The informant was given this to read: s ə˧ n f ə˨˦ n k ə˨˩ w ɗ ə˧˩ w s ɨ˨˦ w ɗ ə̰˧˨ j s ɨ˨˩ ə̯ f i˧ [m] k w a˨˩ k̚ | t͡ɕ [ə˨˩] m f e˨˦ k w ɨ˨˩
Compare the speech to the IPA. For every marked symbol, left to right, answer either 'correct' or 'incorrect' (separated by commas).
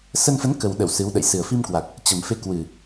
correct, correct